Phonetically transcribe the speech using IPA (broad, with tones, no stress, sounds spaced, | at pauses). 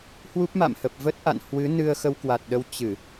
h w u˦˥ p̚ m a̰˧˨ m h ə˨˩ p̚ v ə˦˥ t̚ ʔ a̰˧˨ n h w ɨ˨˦ n ɨ˧ ə̯ x ə˧ w k w a˨˩ t̚ ɗ ə˧ w t͡ɕ ɨ˧˩˨